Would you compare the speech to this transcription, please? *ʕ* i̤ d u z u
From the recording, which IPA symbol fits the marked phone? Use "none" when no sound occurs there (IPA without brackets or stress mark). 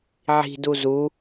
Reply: ʕ